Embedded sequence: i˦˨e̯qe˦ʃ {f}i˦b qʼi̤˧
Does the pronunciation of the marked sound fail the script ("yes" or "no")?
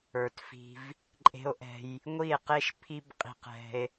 yes